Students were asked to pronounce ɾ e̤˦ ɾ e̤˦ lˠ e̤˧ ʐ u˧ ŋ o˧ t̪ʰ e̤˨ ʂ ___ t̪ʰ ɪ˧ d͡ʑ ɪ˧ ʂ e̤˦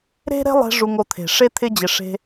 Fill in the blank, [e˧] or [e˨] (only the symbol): e˧